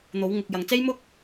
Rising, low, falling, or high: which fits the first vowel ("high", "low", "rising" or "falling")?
rising